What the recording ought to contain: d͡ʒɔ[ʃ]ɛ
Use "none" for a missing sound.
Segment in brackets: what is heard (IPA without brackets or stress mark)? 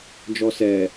s